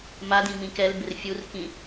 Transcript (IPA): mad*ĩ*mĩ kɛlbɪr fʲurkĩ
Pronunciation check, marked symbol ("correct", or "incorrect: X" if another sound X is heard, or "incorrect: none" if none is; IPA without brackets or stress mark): correct